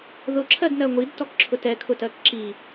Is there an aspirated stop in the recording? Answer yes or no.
yes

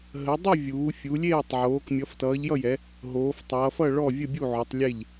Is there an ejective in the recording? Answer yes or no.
no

